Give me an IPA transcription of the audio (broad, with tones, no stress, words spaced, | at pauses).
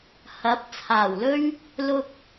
hɐ˨˥p̚t͡sʰaː˨˩wlɵ˥ɥ | lʊ˧k̚